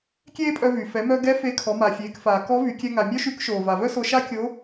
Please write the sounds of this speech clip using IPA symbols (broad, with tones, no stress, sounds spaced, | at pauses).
kʲ eː˥ pʼ œ˧ v y˩ f ɛ˩˧ m œ˧ ɡ ɛ˧˥ f e˧˥ kʰ ɔ˩˧ m a˩ fʲ eː˩˧ k f aː˩ k ɔ˧˥ v y˩˧ kʲ ɛ˧ ŋ a˩ mʲ œ˥ ʃ y˧˥ k ʃ oː˩ v a˩ v œ˥ s o˧ ʃ a˥ kʲ o˧˥